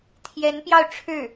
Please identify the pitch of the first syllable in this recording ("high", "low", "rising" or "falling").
rising